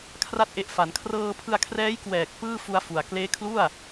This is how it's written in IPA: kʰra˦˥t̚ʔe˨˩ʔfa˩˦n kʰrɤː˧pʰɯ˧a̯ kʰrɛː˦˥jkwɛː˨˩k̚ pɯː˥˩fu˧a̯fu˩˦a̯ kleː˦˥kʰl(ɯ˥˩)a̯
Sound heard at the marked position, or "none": u˥˩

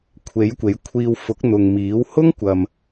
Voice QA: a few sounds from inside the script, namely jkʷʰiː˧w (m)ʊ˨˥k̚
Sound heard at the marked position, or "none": f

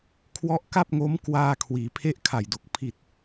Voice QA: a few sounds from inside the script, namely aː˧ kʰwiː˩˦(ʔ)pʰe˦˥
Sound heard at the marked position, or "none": none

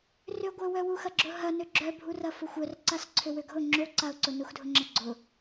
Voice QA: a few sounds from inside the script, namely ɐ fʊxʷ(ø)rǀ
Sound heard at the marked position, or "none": œ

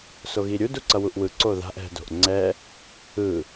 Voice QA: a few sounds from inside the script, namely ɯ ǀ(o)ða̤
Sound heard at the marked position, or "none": o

